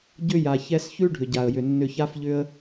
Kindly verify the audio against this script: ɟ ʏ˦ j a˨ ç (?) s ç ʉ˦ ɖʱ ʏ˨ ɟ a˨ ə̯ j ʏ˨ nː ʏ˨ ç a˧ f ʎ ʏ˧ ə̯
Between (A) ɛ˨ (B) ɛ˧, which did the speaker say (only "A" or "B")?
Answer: B